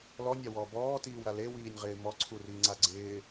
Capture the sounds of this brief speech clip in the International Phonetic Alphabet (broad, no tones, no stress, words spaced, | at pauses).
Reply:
lɔnʲawɔː bɔːtiːwɾa lewiːnʲʁɪː mɔǀʰuriːŋ͡ǀa ɡ͡ǀɪː